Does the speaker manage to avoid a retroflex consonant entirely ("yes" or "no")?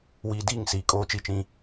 yes